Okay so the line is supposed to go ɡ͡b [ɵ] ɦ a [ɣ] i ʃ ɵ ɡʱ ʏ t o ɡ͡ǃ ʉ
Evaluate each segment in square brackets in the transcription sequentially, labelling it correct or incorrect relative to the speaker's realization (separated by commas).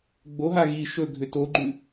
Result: incorrect, correct